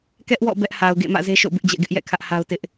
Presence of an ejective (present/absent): absent